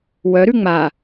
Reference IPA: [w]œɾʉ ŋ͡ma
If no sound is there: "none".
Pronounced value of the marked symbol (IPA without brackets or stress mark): w